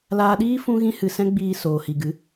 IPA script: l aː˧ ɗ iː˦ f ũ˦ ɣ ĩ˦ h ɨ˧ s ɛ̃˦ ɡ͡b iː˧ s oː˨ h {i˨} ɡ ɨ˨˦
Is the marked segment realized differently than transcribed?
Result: no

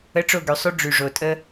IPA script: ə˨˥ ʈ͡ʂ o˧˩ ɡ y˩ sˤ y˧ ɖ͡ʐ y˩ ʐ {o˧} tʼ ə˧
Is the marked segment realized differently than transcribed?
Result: yes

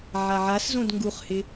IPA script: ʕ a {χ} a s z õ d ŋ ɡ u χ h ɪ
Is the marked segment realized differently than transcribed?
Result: yes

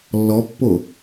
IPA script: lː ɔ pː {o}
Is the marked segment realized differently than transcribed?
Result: no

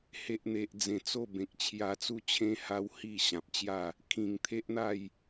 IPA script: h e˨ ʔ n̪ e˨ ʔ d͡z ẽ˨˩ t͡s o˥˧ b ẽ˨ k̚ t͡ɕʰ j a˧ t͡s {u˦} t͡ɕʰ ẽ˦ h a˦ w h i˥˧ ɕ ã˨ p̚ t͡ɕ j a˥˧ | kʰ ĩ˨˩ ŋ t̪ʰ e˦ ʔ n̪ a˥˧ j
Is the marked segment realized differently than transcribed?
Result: no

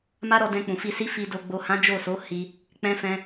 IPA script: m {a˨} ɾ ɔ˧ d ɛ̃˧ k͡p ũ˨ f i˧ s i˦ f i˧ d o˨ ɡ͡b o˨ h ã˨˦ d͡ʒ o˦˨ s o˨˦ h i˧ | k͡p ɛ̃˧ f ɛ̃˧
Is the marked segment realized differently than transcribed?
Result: yes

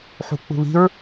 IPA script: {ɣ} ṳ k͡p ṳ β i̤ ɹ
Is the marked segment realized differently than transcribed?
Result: yes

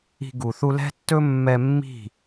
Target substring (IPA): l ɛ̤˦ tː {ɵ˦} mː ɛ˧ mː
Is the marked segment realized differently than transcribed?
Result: no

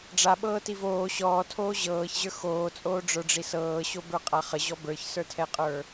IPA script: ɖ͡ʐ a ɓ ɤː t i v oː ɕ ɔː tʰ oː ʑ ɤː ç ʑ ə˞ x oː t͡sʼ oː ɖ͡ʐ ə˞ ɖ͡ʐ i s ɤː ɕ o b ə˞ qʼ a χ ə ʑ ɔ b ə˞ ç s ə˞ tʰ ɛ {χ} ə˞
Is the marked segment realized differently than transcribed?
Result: yes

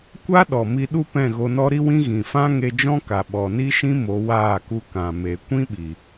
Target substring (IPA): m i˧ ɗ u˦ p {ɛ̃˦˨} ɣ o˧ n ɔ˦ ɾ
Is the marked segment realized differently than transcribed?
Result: no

